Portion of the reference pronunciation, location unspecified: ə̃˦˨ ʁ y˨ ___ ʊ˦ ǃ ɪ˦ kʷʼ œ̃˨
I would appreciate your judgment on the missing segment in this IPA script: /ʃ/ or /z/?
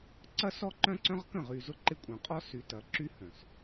z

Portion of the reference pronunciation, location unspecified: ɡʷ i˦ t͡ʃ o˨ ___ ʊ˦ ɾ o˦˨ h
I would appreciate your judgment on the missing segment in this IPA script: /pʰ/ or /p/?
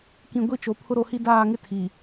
pʰ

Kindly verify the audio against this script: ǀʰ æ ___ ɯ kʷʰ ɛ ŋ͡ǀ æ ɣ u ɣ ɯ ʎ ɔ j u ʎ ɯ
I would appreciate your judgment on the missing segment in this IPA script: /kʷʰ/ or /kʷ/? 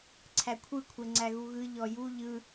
kʷʰ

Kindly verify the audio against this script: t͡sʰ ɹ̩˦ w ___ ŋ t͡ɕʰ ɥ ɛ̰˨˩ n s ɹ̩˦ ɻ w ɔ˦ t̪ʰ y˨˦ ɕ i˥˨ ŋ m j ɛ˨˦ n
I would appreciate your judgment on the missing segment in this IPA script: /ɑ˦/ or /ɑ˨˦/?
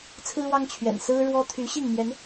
ɑ˦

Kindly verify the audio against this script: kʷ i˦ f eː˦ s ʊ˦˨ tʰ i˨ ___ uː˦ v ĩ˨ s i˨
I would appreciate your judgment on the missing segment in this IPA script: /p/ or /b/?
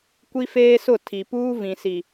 p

